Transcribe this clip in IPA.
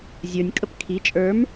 zʲ ə˞ nʲ kʼ ə p kʰ i t͡ʃʼ ə˞ m

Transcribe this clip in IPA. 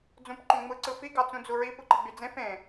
d͡z ũ p ǃ õ ŋ͡m ɯ ǀ ɯ f i ɡ ɑ t͡s ũ d͡z u ɹ i p ɯ ǃ i ɡ͡b y d͡z ẽ f ẽ

